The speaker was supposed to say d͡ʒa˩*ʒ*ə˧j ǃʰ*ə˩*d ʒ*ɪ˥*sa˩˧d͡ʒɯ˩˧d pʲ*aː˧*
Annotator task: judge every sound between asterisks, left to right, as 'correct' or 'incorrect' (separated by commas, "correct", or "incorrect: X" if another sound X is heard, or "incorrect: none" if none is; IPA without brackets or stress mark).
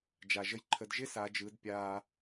correct, incorrect: ə˩˧, correct, correct